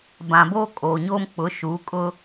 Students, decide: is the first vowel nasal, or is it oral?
nasal